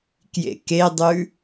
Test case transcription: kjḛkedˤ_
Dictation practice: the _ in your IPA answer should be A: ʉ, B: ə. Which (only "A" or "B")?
A